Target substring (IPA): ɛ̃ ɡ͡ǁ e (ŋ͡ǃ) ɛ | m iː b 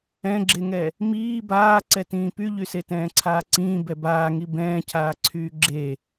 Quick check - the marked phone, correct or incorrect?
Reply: incorrect